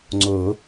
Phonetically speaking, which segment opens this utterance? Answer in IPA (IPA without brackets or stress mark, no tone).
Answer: ŋ͡ǀ